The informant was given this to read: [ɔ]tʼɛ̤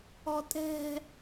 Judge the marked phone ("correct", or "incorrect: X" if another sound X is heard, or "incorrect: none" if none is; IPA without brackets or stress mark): correct